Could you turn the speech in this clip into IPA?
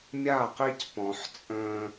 mʲ a˦˨ q i˦ c p ɔ̃˨ ħ t͡sʼ ə̃ː˦

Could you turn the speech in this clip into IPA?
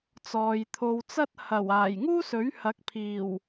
t͡s ɔː˨ j t̪ʰ o˧ w t͡s ɐ˥ t̚ h ɐ˨˩ w aː˨˩ j ŋ uː˥ s ɵ˨˥ ɥ h ɐ˨˥ k̚ pʰ iː˨˩ w

